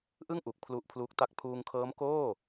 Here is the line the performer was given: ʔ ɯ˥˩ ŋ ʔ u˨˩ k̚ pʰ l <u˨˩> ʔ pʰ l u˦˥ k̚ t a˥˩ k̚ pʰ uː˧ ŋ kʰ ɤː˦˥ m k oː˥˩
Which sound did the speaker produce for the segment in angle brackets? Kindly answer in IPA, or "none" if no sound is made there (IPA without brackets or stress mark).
u˦˥